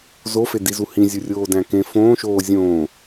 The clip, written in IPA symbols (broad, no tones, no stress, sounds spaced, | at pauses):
z o f e d i z u h ĩ zʲ u rʲ oː d æ̃ k ẽ f õː ʃ oː zʲ õː